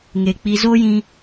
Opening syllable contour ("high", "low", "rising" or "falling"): low